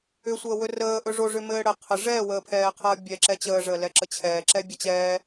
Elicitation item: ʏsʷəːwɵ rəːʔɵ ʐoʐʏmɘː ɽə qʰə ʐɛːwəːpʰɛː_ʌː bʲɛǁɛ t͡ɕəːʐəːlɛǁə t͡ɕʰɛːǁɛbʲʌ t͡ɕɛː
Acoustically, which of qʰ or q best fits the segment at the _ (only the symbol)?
qʰ